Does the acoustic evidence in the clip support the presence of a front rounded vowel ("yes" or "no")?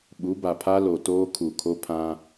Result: no